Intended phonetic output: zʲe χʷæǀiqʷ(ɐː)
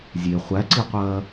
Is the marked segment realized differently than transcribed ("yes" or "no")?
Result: no